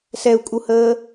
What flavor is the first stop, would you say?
ejective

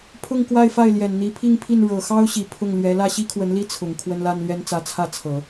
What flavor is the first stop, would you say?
aspirated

